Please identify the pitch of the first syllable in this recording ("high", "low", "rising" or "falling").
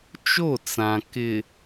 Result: falling